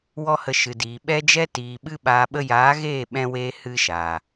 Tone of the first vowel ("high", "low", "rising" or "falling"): high